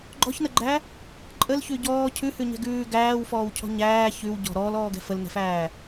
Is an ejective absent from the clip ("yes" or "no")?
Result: no